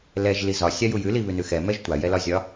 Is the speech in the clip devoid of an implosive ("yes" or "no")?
yes